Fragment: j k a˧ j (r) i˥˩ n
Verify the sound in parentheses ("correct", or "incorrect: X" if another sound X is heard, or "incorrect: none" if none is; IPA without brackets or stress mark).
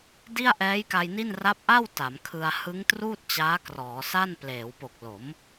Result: incorrect: n